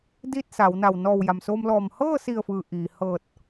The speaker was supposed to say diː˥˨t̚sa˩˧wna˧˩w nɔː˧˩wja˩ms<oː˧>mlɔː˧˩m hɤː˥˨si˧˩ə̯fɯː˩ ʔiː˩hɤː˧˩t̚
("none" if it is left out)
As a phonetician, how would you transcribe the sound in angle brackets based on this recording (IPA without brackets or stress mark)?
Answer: oː˧